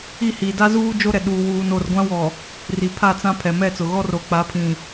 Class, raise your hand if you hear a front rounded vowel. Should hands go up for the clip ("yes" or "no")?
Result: no